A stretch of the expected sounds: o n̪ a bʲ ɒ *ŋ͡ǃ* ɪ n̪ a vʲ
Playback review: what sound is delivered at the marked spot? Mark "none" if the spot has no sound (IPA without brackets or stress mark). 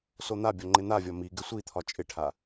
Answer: ŋ͡ǃ